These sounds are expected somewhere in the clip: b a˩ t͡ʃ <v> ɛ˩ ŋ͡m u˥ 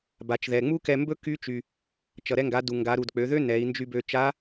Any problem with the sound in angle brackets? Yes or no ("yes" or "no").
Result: yes